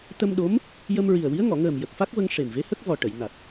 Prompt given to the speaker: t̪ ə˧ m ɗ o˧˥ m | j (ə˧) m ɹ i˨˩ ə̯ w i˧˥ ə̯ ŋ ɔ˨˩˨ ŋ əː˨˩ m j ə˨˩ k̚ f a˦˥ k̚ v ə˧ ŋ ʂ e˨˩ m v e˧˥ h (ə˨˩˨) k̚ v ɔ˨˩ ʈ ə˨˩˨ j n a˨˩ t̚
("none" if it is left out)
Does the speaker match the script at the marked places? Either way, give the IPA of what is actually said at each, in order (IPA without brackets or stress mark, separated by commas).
ə˧, ə˦˥